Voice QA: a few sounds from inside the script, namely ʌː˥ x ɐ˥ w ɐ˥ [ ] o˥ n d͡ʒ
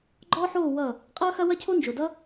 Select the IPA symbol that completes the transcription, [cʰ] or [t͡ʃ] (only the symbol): cʰ